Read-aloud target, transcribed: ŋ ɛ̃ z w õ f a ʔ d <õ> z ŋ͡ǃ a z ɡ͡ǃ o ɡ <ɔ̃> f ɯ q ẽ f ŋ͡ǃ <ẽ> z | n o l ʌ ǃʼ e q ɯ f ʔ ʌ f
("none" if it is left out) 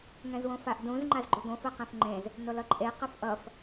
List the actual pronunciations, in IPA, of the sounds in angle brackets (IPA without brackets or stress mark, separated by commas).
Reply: ũ, õ, ẽ